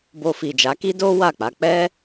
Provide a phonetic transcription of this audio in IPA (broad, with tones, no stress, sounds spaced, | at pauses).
b o˧ f i˨ d͡ʒ a˨˦ k i˦ d o˦ w a˦˨ k͡p a˨˦ k͡p ɛ˦